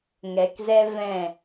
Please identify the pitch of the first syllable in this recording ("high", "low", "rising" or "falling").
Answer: low